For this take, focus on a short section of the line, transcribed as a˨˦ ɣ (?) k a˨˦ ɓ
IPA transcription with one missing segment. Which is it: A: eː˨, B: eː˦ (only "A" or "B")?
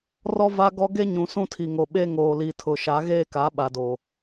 B